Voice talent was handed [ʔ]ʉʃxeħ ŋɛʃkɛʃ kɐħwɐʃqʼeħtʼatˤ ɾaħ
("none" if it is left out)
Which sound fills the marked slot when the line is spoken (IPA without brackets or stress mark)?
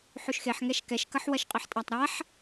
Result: ħ